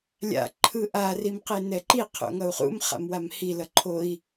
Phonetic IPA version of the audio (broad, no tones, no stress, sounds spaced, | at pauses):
lʲ a̰ ǃʰ ɯ ʔ a r i m q e n ɛ ǃ i qʰ o̰ ŋ ʌ u̯ χ ṵ m χ a̰ m w a m h i l ʌ ǃʰ o i̯